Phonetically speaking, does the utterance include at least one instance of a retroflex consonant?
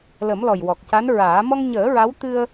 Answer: no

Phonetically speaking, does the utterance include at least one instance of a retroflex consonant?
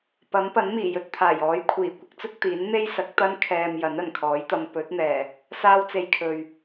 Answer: no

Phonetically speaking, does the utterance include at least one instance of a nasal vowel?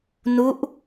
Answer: no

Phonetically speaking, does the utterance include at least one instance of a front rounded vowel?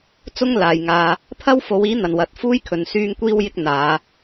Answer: yes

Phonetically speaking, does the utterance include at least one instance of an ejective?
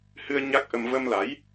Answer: no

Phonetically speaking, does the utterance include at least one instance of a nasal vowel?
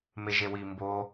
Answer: no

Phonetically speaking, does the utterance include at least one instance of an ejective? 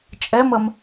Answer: yes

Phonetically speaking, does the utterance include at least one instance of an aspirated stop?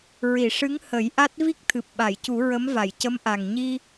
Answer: yes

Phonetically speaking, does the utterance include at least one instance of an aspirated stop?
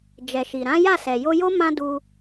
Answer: no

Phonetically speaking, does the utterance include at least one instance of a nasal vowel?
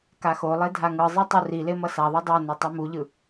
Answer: no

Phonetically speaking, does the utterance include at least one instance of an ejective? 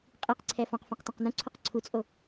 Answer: yes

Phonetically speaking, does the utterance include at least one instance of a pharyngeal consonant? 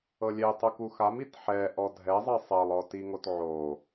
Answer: yes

